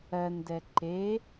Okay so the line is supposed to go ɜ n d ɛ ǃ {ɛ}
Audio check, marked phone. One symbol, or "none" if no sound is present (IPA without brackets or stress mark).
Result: e